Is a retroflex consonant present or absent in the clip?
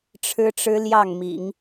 present